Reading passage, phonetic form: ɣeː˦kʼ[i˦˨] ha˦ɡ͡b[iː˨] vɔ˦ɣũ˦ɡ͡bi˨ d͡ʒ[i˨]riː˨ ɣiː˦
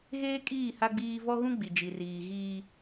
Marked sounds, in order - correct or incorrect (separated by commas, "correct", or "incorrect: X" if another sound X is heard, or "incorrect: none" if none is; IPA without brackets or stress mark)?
incorrect: iː˦˨, incorrect: iː˦, correct